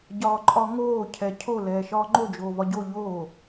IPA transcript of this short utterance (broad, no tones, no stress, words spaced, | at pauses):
ɟɒːǃʼɒŋoː cʰɛcʰo lɛːʃɒːŋ͡ǃo d͡ʒoːvɒɟo ʎoː